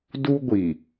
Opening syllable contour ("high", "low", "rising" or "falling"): high